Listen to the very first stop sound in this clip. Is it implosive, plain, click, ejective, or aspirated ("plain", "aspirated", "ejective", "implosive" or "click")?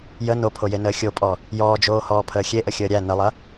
aspirated